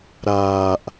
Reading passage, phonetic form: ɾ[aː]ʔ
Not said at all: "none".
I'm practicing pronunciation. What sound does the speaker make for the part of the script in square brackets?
aː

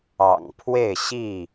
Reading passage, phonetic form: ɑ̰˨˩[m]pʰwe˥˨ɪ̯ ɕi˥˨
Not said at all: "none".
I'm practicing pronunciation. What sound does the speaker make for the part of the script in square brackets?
ŋ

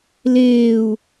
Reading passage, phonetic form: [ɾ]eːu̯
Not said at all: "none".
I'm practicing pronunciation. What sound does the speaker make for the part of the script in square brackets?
l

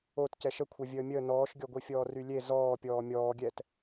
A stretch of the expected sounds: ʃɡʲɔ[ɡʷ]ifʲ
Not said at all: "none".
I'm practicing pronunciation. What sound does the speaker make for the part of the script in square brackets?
ɡʷ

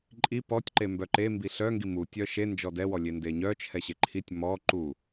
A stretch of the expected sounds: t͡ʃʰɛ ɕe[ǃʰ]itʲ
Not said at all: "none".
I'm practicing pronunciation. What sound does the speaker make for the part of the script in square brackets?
ǃʰ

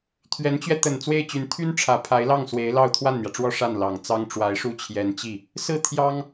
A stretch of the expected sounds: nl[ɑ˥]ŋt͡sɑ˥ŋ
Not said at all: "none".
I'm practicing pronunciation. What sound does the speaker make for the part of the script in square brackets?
ɑ˨˩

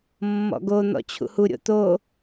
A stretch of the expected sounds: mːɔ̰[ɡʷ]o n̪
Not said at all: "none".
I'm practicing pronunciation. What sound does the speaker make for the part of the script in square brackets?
ɡ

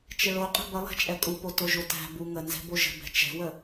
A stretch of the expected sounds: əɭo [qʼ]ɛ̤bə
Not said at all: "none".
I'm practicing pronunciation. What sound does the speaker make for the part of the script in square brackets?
qʼ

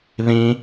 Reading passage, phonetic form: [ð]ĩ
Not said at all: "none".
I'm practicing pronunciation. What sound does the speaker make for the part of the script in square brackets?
ð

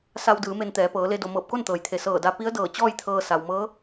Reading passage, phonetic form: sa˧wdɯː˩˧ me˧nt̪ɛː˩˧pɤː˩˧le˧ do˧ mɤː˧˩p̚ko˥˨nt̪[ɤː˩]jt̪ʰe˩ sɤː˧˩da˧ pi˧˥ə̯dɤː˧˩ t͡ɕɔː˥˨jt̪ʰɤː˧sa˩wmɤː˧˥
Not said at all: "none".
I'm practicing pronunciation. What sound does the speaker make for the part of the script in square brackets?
ɤː˩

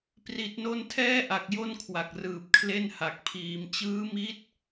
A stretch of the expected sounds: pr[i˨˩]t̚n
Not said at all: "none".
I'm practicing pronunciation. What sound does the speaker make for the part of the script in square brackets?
i˨˩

